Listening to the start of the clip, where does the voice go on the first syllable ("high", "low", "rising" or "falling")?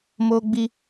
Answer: high